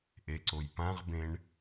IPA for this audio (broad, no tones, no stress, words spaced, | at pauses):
ʔeǀojpãʁbẽɳ